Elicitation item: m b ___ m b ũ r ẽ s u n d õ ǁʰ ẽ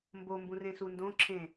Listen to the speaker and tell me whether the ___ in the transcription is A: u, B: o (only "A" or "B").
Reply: B